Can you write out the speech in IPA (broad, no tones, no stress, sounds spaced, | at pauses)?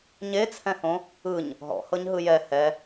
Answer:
ɲ e t͡sʰ ɛ̃ h õ | ɯ ɲ | ɦ ɔ̰ h ɤ ɲ ɦ ɯ j ɛ h ɛ